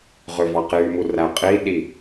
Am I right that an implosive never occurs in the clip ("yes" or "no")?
no